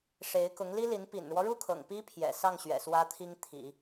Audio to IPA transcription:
ʂ e˧˥ ɪ̯ k ʊ˧˥ ŋ l i˥ l i˧˥ n p ḭ˨˩ n ɻ w ɔ˦ ɻ u˥˩ kʰ ɤ̰˨˩ ŋ p i˥ pʰ j ɛ̰˨˩ s ɑ˥˩ ŋ ɕ ɥ ɛ̰˨˩ s w ä˥ t̪ʰ i˥ ŋ t̪ʰ ḭ˨˩˦

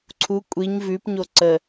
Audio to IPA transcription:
ǀʰ u kʷʼ i ɲ v ʉ p ɲ o ǀ ə

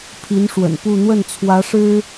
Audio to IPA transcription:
pʰ i˧˥ n ʂ w ə̰˨˩ n p u˥˧ n̪ w ə˥˩ n t͡sʰ w ä˧˥ ʂ ɻ̩˥

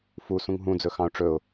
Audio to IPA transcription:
f u s ũ ŋ ɦ ũ d͡z ɵ x ɑ̃ ʊ̯ ʈ͡ʂ ɵ ʊ̯

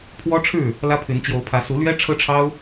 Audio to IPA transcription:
pʰ w ɔ˦ ʈ͡ʂʰ ɻ̩˥˨ | l ä˦ pʰ y˨˦ n t͡ɕ j o˨˦ ʊ̯ pʰ ä˨˦ s u˨˦ l ɥ ɛ˦ ʈ͡ʂʰ ɤ˦ ʈ͡ʂʰ ɑ˦ ʊ̯

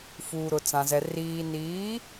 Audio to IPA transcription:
f uː˨ ɾ ʊ˨ t͡s ã˨ z ɛ˨ r iː˨ n iː˨˦

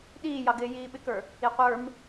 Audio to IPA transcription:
ɗ iː j ɑ ɡ ɪː j iː ɓ ɪ k ə˞ | i qʷ ə˞ m

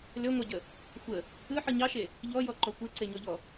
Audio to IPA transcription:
l ø ŋʷ ɑ ɟ ə | xʷ ə | ɯ ħ ɯ ɲ ɑ ʃ e | ʎ ɔ j ɔ ǃ ɔ kʷ e ǀ e ɲ ɔ ʎ ɔ

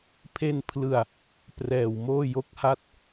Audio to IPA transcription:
pʰ e˧ n pʰ l ɯ˨˩ a̯ | p r ɛː˨˩ w m oː˥˩ j o˦˥ k̚ h a˥˩ t̚

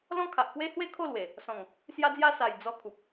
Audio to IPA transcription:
l ɔ̃˦ kʰ a˨ ʔ k w e˦ h w e˥˧ kʰ o˥˧ l w e˨˩ | s ɔ̃˨˩ ŋ | s j a˧ d͡z j a˧ s a˨˩ j d͡z ɔ˧ kʰ u˨ p̚

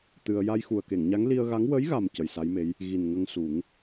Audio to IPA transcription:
t̪ ɨ˧ ə̯ j a˧ j x u˨˩ ə̯ k e˨˩˨ ŋ ɲ a˧˥ ŋ l i˧ ə̯ ɣ a˧˥ ŋ w ə˧˥ j ɣ a˨˩ m c ə˨˩ j s a˧˥ j m e˧˥ j | ɣ i˨˩ n ŋ ə˧ ŋ s u˨˩˦ ŋ

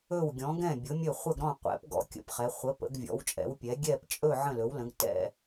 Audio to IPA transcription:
ɵ˧˩ w ɡʲ ɔ̃˩˧ ɡ ɛ̃˧˩ bʲ ʊ˩˧ mʲ ɵ˧˩ χʷ ə˧˩ ɡ ɾ ɔ̃˧˩ qʷ ɛ̰˩˧ p ɡ ɔ̰˩˧ kʲ ə̰˩˧ p χ ɛ˩˧ χʷ ə˩˧ p ə̰˩˧ ɡ vʲ ɔ̰˩˧ w t͡ʃʼ ɛ̰˩˧ w pʲ ɛ˩˧ ɡʲ ɛ˧˩ p t͡ʃʼ ɵ˧˩ ʕ ə̃˧˩ l ɵ˩˧ w l ə̃˩˧ ɡ t ɛ̰˧˩

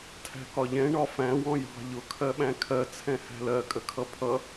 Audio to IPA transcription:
tʰ æ̤ k ɒ ʎ ɛ̃ ɳ ɒ f æ̃ w ɔ̃ j ɑ̤ ʎ ʊ kʰ ɜ ɓ æ̃ kʰ ɜ t͡sʰ ɛ̃ h æ̤ l ɜ kʼ ə kʰ ʌ pʰ ʌ

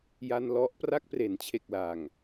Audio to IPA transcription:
j a˧ n l ɔ˦˥ ʔ p r a˥˩ k̚ p r e˩˦ n t͡ɕʰ e˨˩ k̚ l a˨˩ ŋ

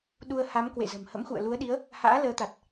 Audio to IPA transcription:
ɗ u˧ ə̯ h a˨˦ m k w ḛ˧˨ z ə̤˨˩ m h ə̰˧˥ m x ṵ˧˨ ə̯ l u˨˦ ə̯ ɗ i˨˦ ə̯ | h a̰ː˧˥ l əː˨˦ t̪ a˨˩ t̚

